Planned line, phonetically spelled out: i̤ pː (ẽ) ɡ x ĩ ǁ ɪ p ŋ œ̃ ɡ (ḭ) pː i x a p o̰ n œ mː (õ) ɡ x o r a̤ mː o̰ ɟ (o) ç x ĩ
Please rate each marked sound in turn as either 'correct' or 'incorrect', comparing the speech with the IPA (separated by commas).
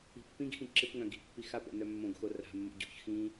incorrect, incorrect, correct, incorrect